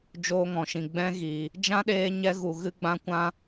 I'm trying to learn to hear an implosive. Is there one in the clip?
yes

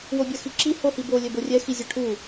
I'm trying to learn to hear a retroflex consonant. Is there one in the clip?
yes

